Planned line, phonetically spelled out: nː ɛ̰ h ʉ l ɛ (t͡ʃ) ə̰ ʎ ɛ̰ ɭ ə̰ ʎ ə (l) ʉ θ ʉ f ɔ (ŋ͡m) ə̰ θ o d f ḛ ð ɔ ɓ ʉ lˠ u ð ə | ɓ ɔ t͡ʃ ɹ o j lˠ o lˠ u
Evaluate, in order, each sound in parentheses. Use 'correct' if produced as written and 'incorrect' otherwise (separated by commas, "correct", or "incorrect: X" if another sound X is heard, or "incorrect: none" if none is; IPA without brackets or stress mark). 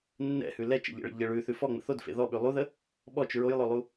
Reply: correct, incorrect: ɭ, correct